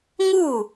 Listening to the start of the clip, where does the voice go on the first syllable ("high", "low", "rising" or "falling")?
falling